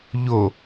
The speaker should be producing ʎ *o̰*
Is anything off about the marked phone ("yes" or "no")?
yes